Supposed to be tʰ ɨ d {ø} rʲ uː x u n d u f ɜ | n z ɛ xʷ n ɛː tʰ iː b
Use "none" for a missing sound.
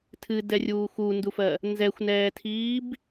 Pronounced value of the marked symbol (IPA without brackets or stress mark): ɛ